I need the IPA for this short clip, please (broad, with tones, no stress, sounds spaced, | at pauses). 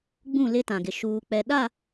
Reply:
ɡ͡b ũ˦˨ l ɪ˦ t ã˨ ɡ ɪ˨ ʃ uː˨ k͡p ɛ˨ ɗ a˦˨